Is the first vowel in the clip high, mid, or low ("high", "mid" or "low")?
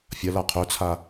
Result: low